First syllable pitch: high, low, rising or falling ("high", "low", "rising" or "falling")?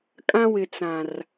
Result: high